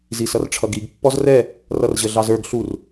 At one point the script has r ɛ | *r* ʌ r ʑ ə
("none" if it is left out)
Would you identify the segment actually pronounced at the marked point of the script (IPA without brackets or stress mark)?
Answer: r